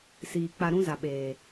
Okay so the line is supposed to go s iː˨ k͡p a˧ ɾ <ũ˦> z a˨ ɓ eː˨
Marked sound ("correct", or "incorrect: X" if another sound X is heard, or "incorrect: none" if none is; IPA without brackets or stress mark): correct